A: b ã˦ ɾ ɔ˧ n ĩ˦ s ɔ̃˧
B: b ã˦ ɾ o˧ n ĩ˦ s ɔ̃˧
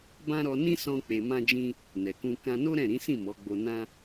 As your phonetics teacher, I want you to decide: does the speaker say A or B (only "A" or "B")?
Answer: A